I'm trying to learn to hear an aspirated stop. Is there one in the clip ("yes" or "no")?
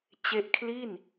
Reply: yes